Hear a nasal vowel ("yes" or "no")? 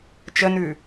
no